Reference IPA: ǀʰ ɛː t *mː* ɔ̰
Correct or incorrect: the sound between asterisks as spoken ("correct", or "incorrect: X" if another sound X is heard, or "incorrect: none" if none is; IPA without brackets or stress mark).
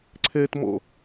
incorrect: m